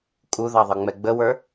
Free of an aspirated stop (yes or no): yes